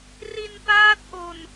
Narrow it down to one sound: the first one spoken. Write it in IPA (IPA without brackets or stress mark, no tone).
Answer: r